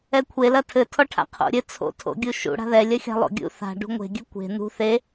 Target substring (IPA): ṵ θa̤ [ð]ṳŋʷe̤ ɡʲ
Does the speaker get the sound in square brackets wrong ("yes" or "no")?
yes